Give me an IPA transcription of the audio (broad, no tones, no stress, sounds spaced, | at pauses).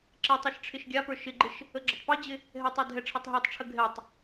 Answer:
ǁ ɛ tˤ ɛ ʃ ʈ͡ʂʰ ɪ ʃ ɡʲ a p ə˞ ʃ ɪ ɡ͡ǃ ɪ ʃ | ə ɡ͡ǁ ə tˤ p i d͡ʑ ɪ | ɦ ɛ tˤ a dʱ ɛ ʈ͡ʂʰ ɛ tˤ ɦ ə˞ tˤ ʈ͡ʂʰ ə ɡʱ ɛ tˤ